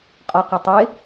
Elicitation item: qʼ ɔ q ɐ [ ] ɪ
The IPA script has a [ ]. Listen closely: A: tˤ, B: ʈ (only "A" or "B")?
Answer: A